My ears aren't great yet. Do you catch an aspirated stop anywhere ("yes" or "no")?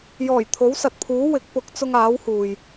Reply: yes